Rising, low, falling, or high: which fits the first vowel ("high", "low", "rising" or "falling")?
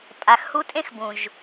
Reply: low